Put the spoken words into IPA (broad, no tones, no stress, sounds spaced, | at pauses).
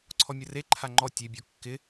ǀʰ ɔ mʲ ə r e ǃʰ a ŋ͡ǃ ɔ tʲ e bʲ ɔ kː ɪ